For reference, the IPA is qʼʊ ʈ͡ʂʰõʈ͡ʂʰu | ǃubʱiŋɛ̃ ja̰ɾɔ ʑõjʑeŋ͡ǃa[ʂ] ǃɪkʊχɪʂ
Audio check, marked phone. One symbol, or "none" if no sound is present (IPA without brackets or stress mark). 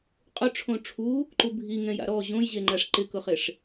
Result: ʂ